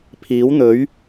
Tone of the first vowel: rising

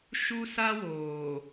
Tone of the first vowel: high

